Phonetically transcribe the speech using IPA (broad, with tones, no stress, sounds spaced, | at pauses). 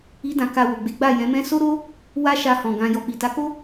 i˦ d ã˧ k a˧ w o˨ ɡ͡b e˨˦ ɡ͡b a˦˨ j ɛ̃˨˦ m ɛ̃˦ s o˦ ɾ o˦ | w a˦ ʃ a˧ h ɔ̃˨ ɡ ã˧ j ɔ˨ k͡p i˨ t a˨˦ k o˦